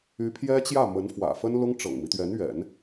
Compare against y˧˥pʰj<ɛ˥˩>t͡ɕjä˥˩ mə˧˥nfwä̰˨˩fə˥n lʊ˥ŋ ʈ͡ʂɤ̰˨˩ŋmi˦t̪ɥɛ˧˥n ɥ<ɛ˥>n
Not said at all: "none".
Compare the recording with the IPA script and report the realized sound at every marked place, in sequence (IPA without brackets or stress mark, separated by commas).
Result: ɛ˥, ɛ̰˨˩˦